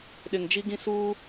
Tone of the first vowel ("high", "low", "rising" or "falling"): low